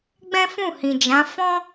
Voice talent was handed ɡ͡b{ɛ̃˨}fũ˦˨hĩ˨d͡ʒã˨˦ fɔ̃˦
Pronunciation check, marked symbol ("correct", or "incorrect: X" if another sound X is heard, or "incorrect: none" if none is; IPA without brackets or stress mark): incorrect: ɛ̃˦